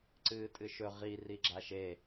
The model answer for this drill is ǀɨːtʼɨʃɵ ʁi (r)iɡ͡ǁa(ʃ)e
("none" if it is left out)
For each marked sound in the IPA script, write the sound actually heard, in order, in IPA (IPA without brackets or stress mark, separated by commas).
r, ʃ